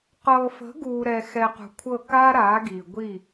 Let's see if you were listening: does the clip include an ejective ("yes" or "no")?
no